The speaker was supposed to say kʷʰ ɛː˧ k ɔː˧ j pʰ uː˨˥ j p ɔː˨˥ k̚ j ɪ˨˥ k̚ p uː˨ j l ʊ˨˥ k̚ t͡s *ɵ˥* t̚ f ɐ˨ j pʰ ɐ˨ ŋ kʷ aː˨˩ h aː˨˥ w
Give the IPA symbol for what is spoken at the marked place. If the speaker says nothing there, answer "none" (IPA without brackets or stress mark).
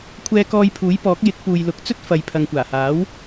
ɵ˥